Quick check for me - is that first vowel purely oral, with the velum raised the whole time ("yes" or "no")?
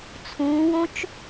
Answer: no